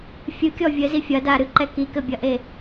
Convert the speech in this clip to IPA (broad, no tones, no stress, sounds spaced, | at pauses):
fʲ ɨ kʲ ɔ vʲ ɘ z i fʲ ɐ d a ɾ ɨ ǃ ɛ k i k ɘ bʲ ɐ ʔ e